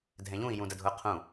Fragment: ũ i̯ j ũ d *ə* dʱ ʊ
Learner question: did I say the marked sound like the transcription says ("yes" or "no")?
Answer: yes